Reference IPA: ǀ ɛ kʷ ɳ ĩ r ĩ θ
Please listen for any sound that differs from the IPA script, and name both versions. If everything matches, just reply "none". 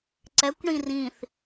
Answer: none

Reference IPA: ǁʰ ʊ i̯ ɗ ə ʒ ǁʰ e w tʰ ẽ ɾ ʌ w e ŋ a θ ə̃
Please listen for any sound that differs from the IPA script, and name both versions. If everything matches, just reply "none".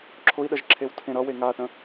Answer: none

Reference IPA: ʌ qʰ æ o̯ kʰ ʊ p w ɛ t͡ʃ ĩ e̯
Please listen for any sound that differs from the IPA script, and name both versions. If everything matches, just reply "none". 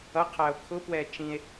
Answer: none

